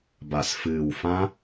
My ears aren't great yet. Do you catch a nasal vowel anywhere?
yes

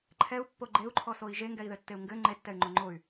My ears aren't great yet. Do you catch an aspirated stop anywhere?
yes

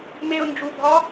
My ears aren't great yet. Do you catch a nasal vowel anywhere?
no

